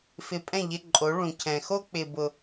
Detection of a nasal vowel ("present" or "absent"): present